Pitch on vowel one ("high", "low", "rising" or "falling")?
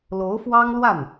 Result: rising